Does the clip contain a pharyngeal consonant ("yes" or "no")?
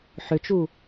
yes